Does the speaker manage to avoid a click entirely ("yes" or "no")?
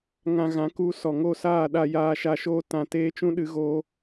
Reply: yes